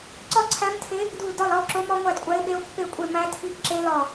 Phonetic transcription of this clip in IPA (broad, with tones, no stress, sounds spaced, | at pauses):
ǀ ɒ˥˧ ǀʰ æ˦˥ m tʰ e˦˥ | d u˥˧ l d ɒ˥˧ l ɒ˦˥ o̯ ǁ o˦˥ m ɒ˦˥ ŋʷ æ˥˧ d kʷʼ æ˦˥ e̯ ɓ e˦˥ o̯ pː e˥˧ kʷʼ e˥˧ m æ˦˥ tʰ i˦˥ ɡ ǁ e˦˥ l ɒ˥˧